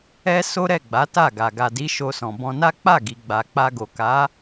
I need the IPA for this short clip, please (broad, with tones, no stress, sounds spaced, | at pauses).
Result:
ɛ˦ s o˦ ɾ ɛ˦˨ ɡ͡b a˨˦ t a˦˨ ɡ a˨ ɡ a˨ d i˨˦ ʃ o˧ s ɔ̃˨ b ɔ̃˧ n a˦ k͡p a˦˨ ɡ i˨ ɡ͡b a˨ k͡p a˧ ɡ o˨ k a˨˦